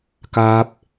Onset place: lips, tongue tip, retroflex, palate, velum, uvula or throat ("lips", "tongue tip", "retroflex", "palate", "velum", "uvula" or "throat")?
velum